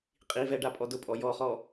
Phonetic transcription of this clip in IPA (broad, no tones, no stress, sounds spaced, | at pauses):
qʼ i v ɛ ɖ a pʼ ɔ d ʊ pʼ ɔ j ɔ χ ɔ